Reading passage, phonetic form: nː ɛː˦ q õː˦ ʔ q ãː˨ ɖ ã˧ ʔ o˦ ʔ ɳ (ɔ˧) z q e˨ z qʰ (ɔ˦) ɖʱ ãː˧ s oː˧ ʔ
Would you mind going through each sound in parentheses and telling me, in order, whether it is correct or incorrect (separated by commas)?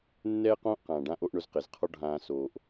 incorrect, correct